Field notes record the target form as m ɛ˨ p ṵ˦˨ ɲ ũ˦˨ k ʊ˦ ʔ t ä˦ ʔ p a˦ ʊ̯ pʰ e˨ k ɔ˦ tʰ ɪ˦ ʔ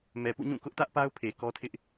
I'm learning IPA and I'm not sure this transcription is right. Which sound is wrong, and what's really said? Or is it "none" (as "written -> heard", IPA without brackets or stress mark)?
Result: none